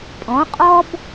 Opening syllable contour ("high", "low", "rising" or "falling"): rising